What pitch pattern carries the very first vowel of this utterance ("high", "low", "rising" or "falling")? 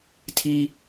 high